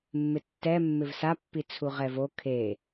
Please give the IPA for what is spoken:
mː ɪ tː ɛ mː ɪ v s a pː i t͡sʰ u ʁ ɛ v o kʰ e

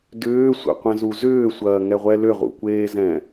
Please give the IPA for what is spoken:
d ʏː sʷ ɛ̰ qʷ ɛ̃ z u z ʏː sʷ ɐː ŋ ɛ ʁʷ ɛ l ʏ ʁ ṵ kʷ eː z ɛ̃

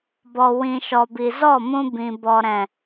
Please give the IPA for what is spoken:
b ɔ˨ w ĩ˨ ʃ ɔ˨ b i˨ z ɔ˦˨ m ũ˧ b ĩ˨ b ɔ˨ ɾ ɛ̃˨

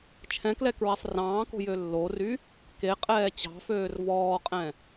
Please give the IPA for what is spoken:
t͡ʃʰ ɛ̃ k l ɛ k ɹ e sˤ r ɑ̃ː k o̤ j ø lː o r y | k e qʼ ɛː t͡ɕ ɑ̤ f øː r v ɔː qʼ ɛ̃

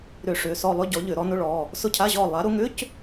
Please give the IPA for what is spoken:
ɾ ʏ˧˩˧ ʂ ʏ˩˧˩ s ɔ˦˨ lˠ ʏ˧˥˧ ɟ ɔ˨˦ ʎ ʏ˧˩˧ ɾ ɔ˨˦ n ʊ˧˥˧ ɭ ɔ˩˧˩ | s ʊ˦˨ cʰ a˧˥˧ ʑ ɔ˦˨ lˠ a˨˦ ɾ ʊ˨˦ ŋ ʏ˧˥˧ c

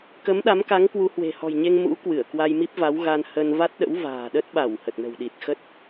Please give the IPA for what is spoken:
k ə˨˦ m ɗ a˨˦ m k a˨˦ ŋ k w u˨˦ h w e̤˨˩ h ɔ̤˨˩ j ɲ e˧ ŋ m ṵ˧˥ k w ɨ˧˩ ə̯ k w a˧ j m i˦˥ p̚ v a˨˦ w ɣ a˧ n h ə˧ n v a˦˥ t̚ ɗ ə̰˧˥ w v a̤ː˨˩ ɗ ə˦˥ t̚ ɓ a˧˩ w h ə˨˩ t̚ n ə̤˨˩ w ɗ i˨˩ t̚ x ə˦˥ t̚

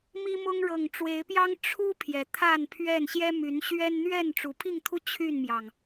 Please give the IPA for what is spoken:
m i˦ m ʊ˦ ŋ ɻ ɤ˨˩ ŋ ʈ͡ʂ w e˨˦ ɪ̯ p j ɑ˦ ŋ ʈ͡ʂʰ u˦ pʰ j ɛ˨˦ t̪ʰ a˥˨ n pʰ ɥ ɛ˥˨ n ɕ j ɛ˦ m y˨˦ n ɕ ɥ ɛ˦ n n̪ ɥ ɛ˥˨ n ʈ͡ʂ u˨˩ pʰ i˥˨ ŋ t̪ʰ u˦ t͡ɕʰ y˥˨ n m j ɑ˩ ŋ

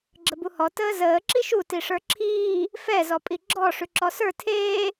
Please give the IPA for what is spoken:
ɡ͡ǁ ə b u h ɔ t əː z əː ǁ i ʃ u t i ʂ ə˞ ǁʰ iː | f ɛ z ɔ pʼ i ɡ͡ǁ ɔ ʂ ʉ ǁ ɔ s ə˞ tʰ eː

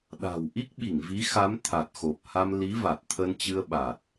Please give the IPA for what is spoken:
ɗ a̤˨˩ w ʔ i˦˥ k̚ ɓ i˧˩ ŋ v i˨˦ x a˨˦ m t̪ʰ a˨˩ t̚ x o˨˩ p̚ h a˧ m l i˨˦ v a˨˩ t̚ t̪ʰ ə˧ n t͡ɕ ɨ˧ ə̯ ɓ a˨˩ t̚

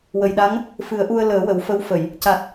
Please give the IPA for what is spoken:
w ə˨˩ j ɗ a˧˥ ŋ | f ɨ˨˩˦ ə̯ ʔ u˧ ə̯ l əː˨˩˦ w ə˨˩ w f ə˧ w f ə˨˩˨ j | c a˨˩ t̚

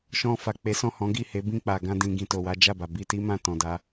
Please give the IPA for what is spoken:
ʃ ɔ̃˧ f a˨ k͡p e˨˦ s ɔ̃˦˨ h ɔ̃˨˦ ɡ i˦˨ h e˨˦ b ĩ˦˨ k͡p a˨ ɡ ã˧ d ĩ˨ ɡ ĩ˧ t o˨ w a˨˦ d͡ʒ a˦˨ b a˨ b i˧ t i˦ m ã˦˨ t ɔ̃˨ d a˧

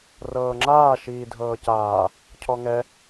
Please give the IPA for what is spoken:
r ɤː ŋ͡ǁ aː ʃ iː dʱ ɤː c aː | cʰ ɔ ŋ ɛ

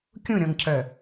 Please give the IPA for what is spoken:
kʲ ũ ɾʲ ɔ̃ ŋ cʰ œ

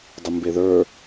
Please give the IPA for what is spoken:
dˤ ə m b e ð ə˞

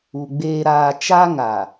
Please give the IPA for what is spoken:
u˨ ɡ͡b eː˨ ɾ aː˨ t͡ʃ a˦ ŋ a˨

